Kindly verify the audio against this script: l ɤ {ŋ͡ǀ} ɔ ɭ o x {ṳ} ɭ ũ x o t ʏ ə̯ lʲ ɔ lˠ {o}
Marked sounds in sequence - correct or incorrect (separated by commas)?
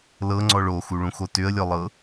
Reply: correct, incorrect, incorrect